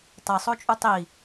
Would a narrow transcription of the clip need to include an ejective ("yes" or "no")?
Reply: yes